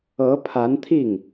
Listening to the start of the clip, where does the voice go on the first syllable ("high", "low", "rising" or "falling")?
rising